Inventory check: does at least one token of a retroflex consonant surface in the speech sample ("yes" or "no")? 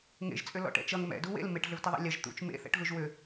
yes